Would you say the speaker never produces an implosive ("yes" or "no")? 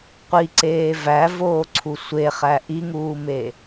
yes